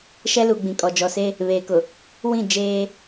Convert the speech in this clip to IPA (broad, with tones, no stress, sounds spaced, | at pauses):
ʃ ɛ˦ l u˨ ɡ͡b ĩ˨ kʼ ɔ˨ d͡ʒ ɔ˨ s e˦ | β eː˨ k ʊ˨ | w ĩ˦˨ d͡ʒ eː˦